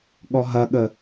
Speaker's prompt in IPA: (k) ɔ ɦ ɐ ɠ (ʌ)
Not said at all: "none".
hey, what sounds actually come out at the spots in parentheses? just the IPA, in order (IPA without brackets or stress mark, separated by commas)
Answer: ɠ, ə